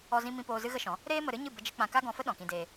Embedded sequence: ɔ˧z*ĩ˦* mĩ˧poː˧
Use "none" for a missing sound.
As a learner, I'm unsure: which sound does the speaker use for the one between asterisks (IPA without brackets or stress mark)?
ĩ˧